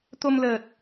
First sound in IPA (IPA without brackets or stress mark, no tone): t̪